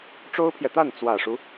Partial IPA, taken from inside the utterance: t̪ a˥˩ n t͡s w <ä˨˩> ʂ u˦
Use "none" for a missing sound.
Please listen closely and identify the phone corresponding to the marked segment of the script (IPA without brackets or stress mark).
ä˨˩